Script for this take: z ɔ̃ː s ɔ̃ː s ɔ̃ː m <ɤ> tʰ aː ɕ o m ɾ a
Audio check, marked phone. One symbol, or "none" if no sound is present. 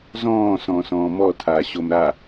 ɔ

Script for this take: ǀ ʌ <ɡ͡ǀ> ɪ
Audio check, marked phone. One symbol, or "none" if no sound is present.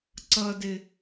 d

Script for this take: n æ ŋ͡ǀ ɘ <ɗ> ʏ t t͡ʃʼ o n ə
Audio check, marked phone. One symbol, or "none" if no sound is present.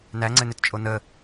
n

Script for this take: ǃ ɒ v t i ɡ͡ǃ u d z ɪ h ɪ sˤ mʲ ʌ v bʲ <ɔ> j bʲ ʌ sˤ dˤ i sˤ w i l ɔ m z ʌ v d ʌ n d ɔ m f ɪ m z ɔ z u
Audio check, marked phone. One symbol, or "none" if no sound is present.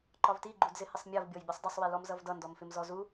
ɔ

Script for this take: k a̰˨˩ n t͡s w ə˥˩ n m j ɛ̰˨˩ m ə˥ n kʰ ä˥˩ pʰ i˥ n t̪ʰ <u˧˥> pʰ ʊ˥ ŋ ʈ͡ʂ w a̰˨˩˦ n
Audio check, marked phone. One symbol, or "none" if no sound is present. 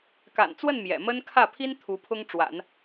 u˧˥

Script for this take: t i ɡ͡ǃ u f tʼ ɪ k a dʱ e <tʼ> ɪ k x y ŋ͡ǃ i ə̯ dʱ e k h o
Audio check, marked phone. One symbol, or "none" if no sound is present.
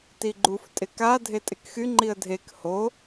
tʼ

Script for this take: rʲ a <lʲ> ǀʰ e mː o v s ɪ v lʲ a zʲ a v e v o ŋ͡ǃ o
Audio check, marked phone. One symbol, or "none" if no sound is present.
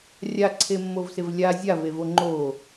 none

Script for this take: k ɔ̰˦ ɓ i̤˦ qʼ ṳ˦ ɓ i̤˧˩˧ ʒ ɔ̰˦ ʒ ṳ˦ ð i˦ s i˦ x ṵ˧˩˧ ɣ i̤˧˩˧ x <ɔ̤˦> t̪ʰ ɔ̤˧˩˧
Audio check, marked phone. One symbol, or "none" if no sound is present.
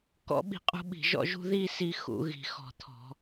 ɔ̤˧˩˧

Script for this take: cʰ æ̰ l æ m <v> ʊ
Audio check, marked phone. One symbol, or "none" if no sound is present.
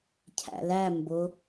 b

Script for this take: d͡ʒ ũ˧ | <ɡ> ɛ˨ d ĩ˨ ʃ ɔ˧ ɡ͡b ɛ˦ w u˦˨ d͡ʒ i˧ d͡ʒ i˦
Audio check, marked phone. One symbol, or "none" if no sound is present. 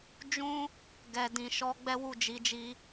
ɡ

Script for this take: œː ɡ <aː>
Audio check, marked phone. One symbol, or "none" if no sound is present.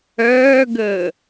əː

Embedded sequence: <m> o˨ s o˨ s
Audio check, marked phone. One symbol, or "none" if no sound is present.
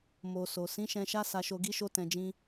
m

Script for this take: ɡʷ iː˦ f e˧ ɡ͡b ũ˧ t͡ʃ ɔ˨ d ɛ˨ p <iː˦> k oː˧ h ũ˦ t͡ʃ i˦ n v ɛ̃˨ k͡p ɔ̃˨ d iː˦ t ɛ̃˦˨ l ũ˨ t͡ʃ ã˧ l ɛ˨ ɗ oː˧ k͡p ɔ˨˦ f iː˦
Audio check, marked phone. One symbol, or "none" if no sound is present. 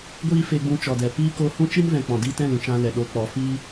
iː˦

